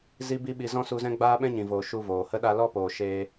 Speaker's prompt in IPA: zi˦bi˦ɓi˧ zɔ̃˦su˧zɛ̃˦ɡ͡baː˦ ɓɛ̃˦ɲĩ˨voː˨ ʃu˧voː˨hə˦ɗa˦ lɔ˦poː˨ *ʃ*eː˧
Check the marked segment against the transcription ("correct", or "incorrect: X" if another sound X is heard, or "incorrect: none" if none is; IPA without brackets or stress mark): correct